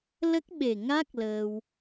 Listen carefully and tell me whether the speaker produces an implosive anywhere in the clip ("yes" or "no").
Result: yes